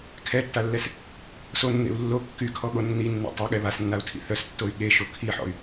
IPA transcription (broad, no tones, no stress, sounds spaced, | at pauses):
kʰ ɛ tː a lː ɛ s | s o nː ḛ u̯ lː o kː y kʰ ɔ ɠ o nː i nː ḛ tˤ e ɠ ɛ β a s nː a u̯ tʰ ḭ θ œ s tː o y̯ ɠ e ʃ o kʰ i ħ ɔ̰ y̯